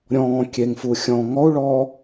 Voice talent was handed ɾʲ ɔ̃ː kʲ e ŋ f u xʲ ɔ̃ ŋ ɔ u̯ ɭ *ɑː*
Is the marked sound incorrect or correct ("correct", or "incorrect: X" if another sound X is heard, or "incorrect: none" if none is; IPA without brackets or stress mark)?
incorrect: ɔː